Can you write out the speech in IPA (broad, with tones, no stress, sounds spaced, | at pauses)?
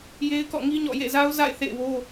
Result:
j e˦ ɪ̯ k ɔ̰˦˨ ŋ i˦ ɲ ɔ̰˦˨ j ḛ˦˨ z a˦ ʊ̯ z a̰˦˨ ɪ̯ θ ḛ˦˨ ɪ̯ w o˦